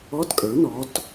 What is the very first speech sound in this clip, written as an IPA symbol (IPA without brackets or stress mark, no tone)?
ɔ